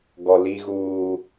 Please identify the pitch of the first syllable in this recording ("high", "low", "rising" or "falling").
low